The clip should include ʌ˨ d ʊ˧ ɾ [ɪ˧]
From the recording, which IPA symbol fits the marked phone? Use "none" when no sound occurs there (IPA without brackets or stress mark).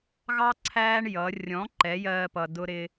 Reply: ɪ˧